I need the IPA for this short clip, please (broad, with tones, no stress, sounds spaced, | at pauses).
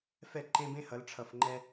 f ɛ˦˨ ǃ ẽ˦ b ẽ˦ h ʌ˨˦ l ʈ͡ʂʰ ʌ˨ f ŋ͡ǃ ɛ˧